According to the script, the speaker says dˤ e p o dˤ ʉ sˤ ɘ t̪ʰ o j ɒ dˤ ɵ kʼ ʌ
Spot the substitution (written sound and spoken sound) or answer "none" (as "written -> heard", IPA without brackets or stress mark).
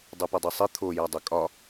ʌ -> ɒ